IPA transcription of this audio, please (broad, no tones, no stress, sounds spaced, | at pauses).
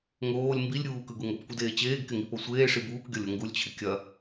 ŋ oː lʲ m b i lʲ ɾʲ uː k ɯ ɡ u ŋ o p kʷ ɯ d eː t͡ɕ eː ɡ k ɪ ŋ i p o sʷ eː ʂ i b uː k ɡʲ ɔ lʲ o ŋ ɡ u lʲ t͡ɕʰ ɪ kʲ ɐ